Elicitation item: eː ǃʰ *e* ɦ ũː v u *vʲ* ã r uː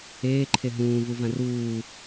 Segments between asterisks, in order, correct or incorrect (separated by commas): correct, incorrect